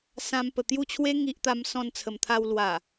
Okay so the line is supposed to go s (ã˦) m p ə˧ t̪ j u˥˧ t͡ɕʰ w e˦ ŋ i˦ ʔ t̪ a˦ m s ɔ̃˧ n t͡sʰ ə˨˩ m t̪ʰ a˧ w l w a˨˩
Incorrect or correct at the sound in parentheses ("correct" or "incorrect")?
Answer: correct